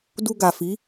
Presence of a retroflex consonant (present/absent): absent